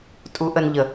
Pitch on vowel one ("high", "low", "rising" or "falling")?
rising